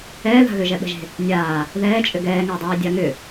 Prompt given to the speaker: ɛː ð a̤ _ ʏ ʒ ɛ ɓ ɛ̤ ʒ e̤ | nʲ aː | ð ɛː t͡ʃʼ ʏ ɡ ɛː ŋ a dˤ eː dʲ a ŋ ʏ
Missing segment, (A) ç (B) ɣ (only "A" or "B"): B